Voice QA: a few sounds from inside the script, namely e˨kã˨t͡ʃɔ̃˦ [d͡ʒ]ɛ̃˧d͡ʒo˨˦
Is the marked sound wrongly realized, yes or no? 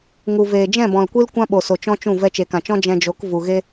no